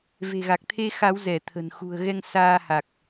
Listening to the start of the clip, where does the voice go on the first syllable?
low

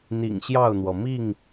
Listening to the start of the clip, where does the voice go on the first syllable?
low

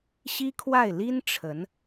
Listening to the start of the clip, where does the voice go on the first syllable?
high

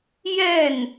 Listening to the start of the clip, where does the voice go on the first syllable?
falling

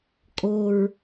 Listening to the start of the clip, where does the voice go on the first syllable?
high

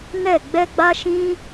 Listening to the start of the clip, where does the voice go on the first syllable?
falling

